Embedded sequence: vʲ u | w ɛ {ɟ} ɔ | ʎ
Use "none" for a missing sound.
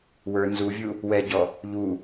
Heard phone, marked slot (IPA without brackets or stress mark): ɟ